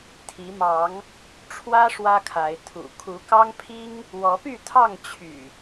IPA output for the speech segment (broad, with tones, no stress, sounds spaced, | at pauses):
t̪ʰ i˨˦ m ɑ˨˦ ŋ | ʈ͡ʂʰ w ä˦ ʂ w ä˦ kʰ a˨˦ ɪ̯ t̪ʰ ṵ˨˩ kʰ u˨˦ k ɑ˦ ŋ pʰ i˦ ŋ | w ɔ˨˦ p y˥˨ t̪ʰ ɑ˥˨ ŋ t͡ɕʰ y̰˨˩